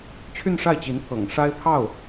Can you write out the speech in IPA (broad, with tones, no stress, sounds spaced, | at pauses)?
t͡ɕʰ y˥˧ n ʂ a˥˩ ɪ̯ t͡ɕ i˧˥ n pʰ ɤ̰˨˩ ŋ ʂ a˥ ɪ̯ pʰ ɑ˥˩ ʊ̯